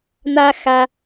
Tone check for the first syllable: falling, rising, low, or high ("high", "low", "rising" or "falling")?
high